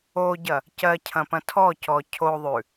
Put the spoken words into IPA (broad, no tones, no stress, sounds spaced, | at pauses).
o ɟ ɐ | c ɜ cʰ ɐ̃ p ɐ̃ tʰ ɔ c ɔ cʰ o ðˤ ʉ